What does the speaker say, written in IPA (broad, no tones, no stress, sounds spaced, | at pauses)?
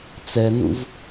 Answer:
t͡s ɛ n ṵ v